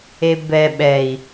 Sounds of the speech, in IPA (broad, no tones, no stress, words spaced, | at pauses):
ebɛ ɓɛi̯